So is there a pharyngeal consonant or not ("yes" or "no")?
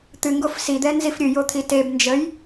no